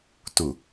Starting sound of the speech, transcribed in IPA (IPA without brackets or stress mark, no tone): t